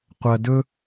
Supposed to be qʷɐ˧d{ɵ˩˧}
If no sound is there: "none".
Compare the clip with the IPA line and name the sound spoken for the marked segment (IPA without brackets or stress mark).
ɵ˥